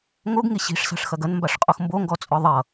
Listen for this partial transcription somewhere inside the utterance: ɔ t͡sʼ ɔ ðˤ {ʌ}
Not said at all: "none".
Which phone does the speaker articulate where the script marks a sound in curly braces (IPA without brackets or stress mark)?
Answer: ʌ